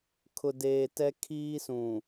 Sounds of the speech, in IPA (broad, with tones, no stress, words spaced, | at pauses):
kʰʊ˨deː˨ tɛ˦ kʰiː˦sũ˨